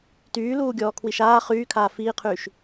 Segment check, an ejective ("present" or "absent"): absent